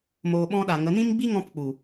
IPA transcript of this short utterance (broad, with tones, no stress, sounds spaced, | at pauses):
m oː˧ ɓ ɔ̃˦ ɗ a˨ ŋ ə˨˦ n ĩ˦ m ɡ͡b i˦ ŋ ɔ̃˧ p k͡p u˨